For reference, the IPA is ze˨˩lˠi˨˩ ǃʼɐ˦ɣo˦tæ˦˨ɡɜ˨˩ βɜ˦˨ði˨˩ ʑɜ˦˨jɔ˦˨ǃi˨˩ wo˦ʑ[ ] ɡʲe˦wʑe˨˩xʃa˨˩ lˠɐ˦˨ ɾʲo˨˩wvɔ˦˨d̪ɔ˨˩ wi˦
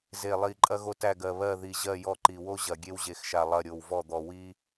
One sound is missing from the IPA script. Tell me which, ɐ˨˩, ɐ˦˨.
ɐ˨˩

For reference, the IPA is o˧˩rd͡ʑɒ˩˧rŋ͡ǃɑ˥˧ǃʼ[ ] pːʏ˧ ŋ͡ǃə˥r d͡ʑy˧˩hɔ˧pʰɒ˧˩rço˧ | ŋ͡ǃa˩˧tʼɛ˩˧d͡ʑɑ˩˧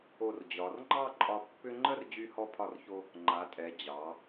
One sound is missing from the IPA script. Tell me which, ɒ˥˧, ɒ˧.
ɒ˧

